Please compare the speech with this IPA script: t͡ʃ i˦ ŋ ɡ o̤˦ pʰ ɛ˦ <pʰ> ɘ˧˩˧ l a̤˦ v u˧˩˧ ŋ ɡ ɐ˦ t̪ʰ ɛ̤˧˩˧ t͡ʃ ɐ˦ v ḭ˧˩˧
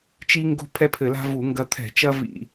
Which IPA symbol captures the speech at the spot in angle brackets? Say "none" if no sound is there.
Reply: pʰ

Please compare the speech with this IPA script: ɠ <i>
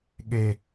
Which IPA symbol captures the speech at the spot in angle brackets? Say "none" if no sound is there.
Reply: e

